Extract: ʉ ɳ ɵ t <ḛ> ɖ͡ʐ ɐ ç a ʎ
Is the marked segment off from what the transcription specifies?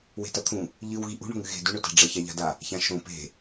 yes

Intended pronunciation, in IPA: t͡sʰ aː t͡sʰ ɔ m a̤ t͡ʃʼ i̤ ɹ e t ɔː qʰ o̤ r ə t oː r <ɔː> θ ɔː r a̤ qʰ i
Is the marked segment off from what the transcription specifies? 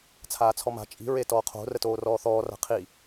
no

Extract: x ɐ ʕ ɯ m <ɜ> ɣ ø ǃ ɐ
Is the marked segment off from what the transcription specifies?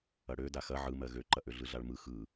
no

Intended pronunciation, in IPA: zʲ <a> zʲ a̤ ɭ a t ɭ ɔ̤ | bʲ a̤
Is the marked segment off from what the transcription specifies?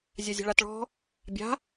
no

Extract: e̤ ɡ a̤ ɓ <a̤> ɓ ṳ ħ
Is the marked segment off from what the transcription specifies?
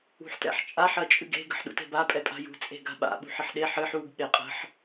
yes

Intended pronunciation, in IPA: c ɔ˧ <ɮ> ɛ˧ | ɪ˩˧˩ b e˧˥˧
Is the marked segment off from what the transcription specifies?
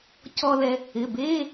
yes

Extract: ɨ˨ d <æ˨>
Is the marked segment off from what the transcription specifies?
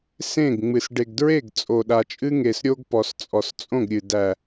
no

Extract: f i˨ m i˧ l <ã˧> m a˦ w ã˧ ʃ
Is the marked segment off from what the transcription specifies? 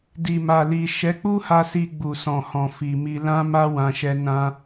yes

